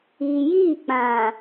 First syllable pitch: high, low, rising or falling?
low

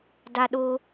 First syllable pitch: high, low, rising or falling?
high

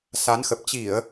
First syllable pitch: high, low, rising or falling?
rising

